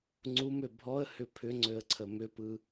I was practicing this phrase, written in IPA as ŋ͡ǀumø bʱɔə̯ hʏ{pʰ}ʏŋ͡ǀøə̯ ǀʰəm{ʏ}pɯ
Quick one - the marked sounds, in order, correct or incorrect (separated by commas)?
correct, correct